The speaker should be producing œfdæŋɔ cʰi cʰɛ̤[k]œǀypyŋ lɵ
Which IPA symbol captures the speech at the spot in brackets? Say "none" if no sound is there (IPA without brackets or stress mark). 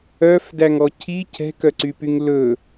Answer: k